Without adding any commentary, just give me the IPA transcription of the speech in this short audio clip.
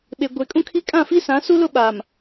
ɓ e˨ ɡʷ e˨ kʼ ũ˦ kʰ i˦ kʼ ã˦˨ f i˦ s ã˨˦ s u˦ l ʊ˦ ɓ aː˨ m

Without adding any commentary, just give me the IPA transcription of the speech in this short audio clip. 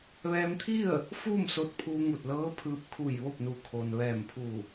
ʋ ɛː˧ m t̪ʰ i˥˨ ə̯ | f uː˥˨ m s o˧ t̚ pʰ uː˧ ŋ u˧˩ t̚ l ɤː˧˥ pʰ ɯː˧ p̚ kʰ u˧˩ j ʋ o˥˨ p̚ n u˧˩ kʰ o˩ n ʋ ɛː˧˩ m pʰ u˧˩

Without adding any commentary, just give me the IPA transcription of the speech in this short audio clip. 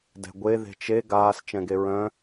d ɛ̤ ɡʷ e ð e̤ t͡ʃ e ɡ aː s t͡ʃ ɛ̃ ɡ e ɹ œ̃

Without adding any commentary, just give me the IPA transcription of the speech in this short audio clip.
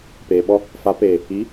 p eː˨ ɓ ɔ˦ | f a˨˦ p eː˨ | i˨˦

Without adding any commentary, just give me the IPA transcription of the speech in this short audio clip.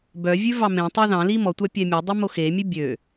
b œ vʲ ʉ v ɑ m ẽ tˤ ɑ ð ɑ̃ l i m ɔ tʷ ɑ pʲ ɛ mʲ o dˤ e m o x e mʲ ʉ bʲ ø

